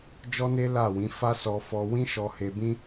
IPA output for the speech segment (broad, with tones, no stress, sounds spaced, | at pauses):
d͡ʒ ɔ˦ n e˦ l a˦˨ w ĩ˨˦ f a˦ s ɔ˧ f ɔ˧ w ĩ˦ ʃ ɔ˧ h e˧ b ĩ˦